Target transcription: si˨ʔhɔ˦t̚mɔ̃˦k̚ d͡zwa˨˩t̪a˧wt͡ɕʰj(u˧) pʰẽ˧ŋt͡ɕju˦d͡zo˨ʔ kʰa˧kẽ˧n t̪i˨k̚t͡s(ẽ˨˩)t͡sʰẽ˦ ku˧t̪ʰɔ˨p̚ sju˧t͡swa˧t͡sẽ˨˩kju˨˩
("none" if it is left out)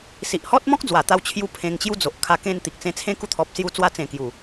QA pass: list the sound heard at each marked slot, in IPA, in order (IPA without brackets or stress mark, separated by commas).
u˧, ẽ˧